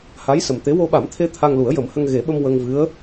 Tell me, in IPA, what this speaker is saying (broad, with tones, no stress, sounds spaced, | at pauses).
h a˧˥ j s ə˨˩ m t̪ e˧˥ w o˧ ɓ a˨˩˦ m t̪ʰ e˧ t̪ʰ a˧ ŋ l u˨˩˦ ə̯ j ə˨˩˦ m h ə˧ ŋ ɣ e˨˩˦ ɓ ə˧ m w ə˧ ŋ v ɨ˧˥ ə̯